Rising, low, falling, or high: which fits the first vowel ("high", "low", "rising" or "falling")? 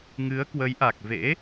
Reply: rising